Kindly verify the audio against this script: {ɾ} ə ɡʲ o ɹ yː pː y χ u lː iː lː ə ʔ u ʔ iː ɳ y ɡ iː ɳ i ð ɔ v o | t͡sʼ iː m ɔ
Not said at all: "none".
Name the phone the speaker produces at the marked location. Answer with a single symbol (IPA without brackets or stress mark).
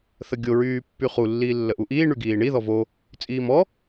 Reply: θ